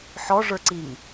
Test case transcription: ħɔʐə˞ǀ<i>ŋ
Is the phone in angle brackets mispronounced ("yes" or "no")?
no